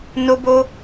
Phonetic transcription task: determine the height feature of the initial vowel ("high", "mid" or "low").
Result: mid